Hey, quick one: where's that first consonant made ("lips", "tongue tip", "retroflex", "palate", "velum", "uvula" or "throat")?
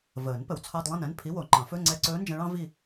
lips